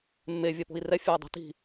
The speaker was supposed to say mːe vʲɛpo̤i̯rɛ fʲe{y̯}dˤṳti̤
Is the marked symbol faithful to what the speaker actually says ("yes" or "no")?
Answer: yes